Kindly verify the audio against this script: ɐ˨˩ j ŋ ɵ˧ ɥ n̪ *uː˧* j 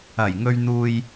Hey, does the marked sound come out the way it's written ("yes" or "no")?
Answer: yes